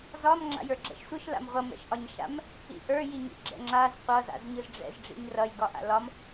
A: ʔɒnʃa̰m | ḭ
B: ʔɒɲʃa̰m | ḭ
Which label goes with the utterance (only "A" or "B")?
B